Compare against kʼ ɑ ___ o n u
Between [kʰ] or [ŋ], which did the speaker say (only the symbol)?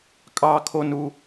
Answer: kʰ